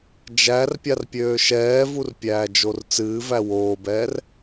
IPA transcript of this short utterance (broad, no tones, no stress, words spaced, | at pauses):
d͡ʒærpʲarpʲøː ʃɛːvurpʲæːd͡ʒor t͡sɨːvæ woːbɛːr